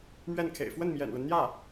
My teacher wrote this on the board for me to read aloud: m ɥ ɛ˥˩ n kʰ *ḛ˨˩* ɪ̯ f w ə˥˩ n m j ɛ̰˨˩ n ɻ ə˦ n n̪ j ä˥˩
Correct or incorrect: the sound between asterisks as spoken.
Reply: correct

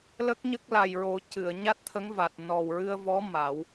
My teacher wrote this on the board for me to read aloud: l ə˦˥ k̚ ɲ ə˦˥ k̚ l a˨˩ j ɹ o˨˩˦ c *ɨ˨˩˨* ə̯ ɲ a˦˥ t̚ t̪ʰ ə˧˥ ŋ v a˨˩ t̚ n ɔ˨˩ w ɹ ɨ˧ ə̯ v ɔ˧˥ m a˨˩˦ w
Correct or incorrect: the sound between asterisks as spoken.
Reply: correct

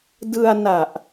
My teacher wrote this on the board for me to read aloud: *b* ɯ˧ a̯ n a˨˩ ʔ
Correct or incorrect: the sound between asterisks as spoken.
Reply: incorrect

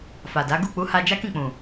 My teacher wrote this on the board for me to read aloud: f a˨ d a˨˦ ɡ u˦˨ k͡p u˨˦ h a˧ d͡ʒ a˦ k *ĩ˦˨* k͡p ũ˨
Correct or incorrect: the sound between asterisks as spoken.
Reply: correct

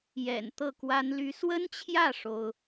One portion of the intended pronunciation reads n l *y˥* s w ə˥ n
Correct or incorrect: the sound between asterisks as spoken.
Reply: correct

